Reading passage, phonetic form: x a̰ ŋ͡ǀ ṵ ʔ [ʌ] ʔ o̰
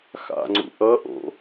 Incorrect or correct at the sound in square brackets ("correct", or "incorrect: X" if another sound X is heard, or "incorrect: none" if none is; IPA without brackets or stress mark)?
correct